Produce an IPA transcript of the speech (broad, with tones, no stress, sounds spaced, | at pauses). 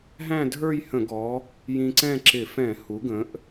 ɦ æ̃˥˧ dʱ ə˞˥˧ j h ə̃˧˩˧ ɡ ɔ˩˧ | j ĩ˧ ǀ ɛ̃˥˧ ǁ ɪ˧˩˧ f ɛ̃˧˩˧ h u˩˧ ɡ ə̃˩˧ ʔ